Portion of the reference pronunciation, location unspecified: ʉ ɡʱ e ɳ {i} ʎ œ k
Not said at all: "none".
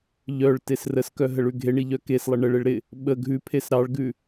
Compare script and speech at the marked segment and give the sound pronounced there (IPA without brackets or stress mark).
i